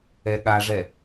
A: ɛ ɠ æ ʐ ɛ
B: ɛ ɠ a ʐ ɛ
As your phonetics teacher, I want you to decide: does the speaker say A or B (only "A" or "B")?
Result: B